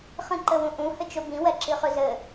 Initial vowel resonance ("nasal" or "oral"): nasal